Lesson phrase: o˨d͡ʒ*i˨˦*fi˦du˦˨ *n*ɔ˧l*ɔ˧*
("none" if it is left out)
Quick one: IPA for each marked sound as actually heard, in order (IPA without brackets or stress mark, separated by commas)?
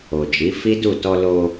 i˨˦, t, o˧